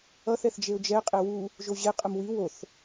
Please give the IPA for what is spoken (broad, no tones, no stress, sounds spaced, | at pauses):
ʌ θ ɛ θ d͡ʒ e ʊ̯ d͡ʒ ɛ qʼ e w u | ʒ o ʑ e qʼ ɯ m w i w o θ